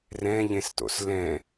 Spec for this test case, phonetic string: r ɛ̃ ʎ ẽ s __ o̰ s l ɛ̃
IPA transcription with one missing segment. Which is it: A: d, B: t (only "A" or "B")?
B